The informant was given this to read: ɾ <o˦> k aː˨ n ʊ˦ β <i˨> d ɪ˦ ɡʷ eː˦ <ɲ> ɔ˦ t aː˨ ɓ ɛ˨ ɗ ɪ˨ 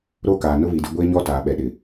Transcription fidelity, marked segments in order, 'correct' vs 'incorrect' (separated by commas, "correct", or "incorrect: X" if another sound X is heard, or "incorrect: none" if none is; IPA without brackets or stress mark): correct, correct, correct